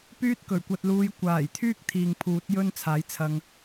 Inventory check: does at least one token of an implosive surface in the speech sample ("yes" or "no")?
no